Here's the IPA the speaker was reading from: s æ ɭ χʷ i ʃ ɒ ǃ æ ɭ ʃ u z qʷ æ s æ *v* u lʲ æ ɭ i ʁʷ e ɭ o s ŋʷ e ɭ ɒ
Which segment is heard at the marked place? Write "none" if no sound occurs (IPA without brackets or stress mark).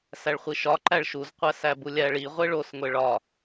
b